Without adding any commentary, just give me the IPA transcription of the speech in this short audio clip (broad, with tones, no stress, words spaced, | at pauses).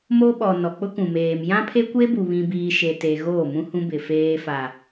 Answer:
mo˦ɓɔ˨ nɔ˨ k͡pʊ˦kũ˨meː˨m jã˦pʰe˦kʷe˦bu˨ βĩ˦biː˦ ʃe˦ te˦ ɣoː˦˨mũ˦hũ˦bɪ˨ feː˦fa˨